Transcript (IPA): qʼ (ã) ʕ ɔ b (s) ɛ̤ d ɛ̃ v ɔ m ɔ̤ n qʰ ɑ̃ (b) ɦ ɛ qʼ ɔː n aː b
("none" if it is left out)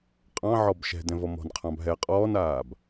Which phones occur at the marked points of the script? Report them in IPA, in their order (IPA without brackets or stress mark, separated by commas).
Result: ɑ̃, ʃ, b